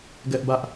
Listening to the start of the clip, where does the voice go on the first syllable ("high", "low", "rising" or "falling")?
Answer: high